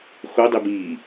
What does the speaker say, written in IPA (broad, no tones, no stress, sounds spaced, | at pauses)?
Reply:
x o dˤ i b iː